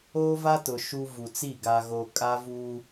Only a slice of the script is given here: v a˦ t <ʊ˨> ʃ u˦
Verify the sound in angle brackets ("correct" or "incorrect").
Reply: correct